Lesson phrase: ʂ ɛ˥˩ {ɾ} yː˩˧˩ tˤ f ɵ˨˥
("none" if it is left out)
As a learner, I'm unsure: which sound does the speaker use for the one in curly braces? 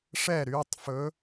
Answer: ɾ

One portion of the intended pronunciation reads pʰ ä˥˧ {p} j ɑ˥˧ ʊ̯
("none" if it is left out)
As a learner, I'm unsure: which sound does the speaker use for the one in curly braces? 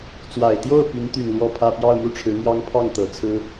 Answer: p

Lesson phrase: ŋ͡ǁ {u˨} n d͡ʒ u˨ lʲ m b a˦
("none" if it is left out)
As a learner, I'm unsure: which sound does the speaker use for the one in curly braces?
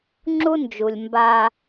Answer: u˦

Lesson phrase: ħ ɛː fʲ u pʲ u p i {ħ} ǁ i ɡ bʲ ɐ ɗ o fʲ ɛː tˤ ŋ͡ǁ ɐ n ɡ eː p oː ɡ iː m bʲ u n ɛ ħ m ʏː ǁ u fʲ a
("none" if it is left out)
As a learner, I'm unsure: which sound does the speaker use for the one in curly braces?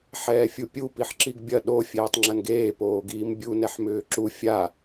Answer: ħ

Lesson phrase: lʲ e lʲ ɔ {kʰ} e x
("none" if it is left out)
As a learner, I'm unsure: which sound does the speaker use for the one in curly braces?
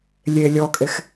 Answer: kʼ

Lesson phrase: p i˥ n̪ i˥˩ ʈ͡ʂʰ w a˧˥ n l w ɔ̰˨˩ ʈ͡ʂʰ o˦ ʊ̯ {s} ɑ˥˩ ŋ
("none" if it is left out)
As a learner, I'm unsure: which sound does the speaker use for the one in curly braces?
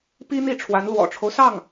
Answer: s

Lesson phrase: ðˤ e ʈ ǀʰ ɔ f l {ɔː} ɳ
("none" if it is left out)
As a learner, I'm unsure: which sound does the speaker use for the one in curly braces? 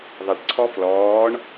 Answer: ɔː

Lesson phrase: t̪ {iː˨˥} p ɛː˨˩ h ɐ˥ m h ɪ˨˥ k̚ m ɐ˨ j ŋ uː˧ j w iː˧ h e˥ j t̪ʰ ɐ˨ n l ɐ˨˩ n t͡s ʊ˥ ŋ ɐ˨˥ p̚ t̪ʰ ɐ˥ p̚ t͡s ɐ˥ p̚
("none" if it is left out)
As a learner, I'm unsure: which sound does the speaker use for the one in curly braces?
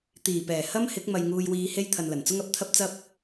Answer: iː˨˩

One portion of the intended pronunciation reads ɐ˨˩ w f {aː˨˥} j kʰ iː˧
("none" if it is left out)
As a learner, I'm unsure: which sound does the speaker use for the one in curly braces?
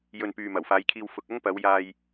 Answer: aː˨˥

